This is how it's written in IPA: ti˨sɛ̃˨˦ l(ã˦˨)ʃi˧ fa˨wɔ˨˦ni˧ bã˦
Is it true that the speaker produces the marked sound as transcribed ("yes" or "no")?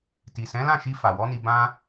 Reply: yes